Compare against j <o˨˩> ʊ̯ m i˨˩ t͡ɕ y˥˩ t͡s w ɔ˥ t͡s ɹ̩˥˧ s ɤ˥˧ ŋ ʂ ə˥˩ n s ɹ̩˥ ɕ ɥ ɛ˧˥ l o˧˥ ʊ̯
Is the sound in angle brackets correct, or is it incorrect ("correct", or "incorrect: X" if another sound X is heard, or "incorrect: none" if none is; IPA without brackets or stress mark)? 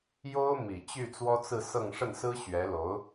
incorrect: o˥